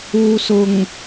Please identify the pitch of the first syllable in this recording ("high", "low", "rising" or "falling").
low